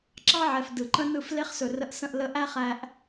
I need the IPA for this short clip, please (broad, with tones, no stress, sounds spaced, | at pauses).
ǁ ɑ˦ ʕ ɛ˨ f d ɯ˨ ǃ ə̃˦ n ɯ˦˨ f l e˦ χ s ɵ˨ r ə˧ ʔ s ə̃˦˨ ʔ l ə˧ ʔ æ˦ χ æ˧ ʔ